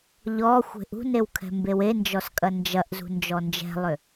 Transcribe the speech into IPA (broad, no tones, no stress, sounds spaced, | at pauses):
ʎ ɔ xʷ e̤ ʔ ṳ n e w kʰ ɛ̤ m b e w e n d͡ʒ ɔ s kʼ ɐ n d͡ʒ ɐ ʔ z ṳ n d͡ʒ ɔ n d͡ʒ ɛ̤ lˠ ʏ